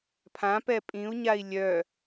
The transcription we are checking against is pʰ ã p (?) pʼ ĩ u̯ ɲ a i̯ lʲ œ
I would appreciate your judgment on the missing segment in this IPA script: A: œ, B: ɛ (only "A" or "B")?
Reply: B